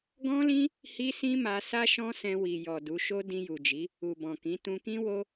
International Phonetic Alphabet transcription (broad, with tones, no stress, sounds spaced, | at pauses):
ɡ ɔ̃˦ l ĩ˦ | h i˦ s ĩ˦ m a˧ s a˦ ʃ ɔ̃˦ s ɛ̃˧ w i˨ j ɔ˨ d u˨˦ ʃ o˦ d ĩ˧ j u˨ d͡ʒ i˨˦ | u˨ b ɔ̃˨ k ĩ˨˦ t ũ˧ k ĩ˦ w o˦